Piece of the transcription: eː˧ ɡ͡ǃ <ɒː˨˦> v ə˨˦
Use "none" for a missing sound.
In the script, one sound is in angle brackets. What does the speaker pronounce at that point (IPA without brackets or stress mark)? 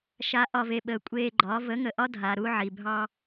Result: ɒː˨˦